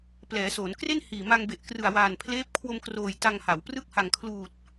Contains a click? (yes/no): no